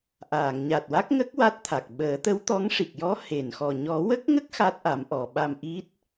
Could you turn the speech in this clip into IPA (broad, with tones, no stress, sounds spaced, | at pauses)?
ʔ aː˨˩˨ ŋ ɲ a˨˩ t̚ w a˦˥ k̚ ŋ ə˦˥ k̚ w a˦˥ t̚ t̪ʰ a˨˩ k̚ ɓ əː˨˩˦ t̪ ə˧˥ w t̪ ɔ˧˥ ŋ ʂ i˨˩ k̚ j ɔ˧˥ h e˨˩˨ n x ɔ˨˩ ɲ ɔ˨˩˦ w ə˦˥ k̚ ŋ ə˦˥ k̚ x a˦˥ t̚ ʔ a˨˩˦ m ʔ ɔ˨˩˨ ɓ a˧ m ʔ i˦˥ t̚